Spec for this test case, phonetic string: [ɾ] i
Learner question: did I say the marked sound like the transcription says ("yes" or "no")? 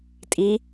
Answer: no